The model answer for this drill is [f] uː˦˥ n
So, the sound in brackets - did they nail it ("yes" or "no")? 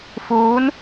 yes